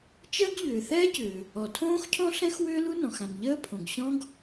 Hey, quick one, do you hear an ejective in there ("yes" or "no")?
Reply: no